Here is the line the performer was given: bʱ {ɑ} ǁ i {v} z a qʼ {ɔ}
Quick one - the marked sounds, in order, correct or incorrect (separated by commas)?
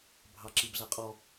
correct, incorrect, correct